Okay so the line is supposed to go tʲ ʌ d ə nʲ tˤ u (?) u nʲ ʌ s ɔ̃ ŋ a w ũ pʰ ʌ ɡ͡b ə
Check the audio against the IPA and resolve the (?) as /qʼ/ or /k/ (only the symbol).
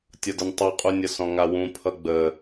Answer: qʼ